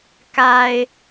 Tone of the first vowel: low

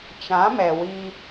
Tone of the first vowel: rising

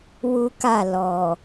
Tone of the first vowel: high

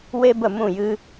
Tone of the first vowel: high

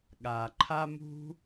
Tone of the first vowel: low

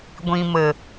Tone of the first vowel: low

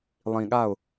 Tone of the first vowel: low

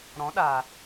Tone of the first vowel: rising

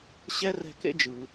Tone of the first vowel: high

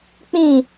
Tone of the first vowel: falling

